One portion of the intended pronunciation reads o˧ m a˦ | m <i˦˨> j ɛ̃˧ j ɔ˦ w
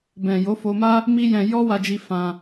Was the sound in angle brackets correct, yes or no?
no